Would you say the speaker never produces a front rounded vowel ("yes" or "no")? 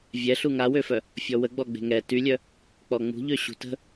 no